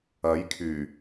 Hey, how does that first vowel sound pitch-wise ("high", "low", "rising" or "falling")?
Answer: rising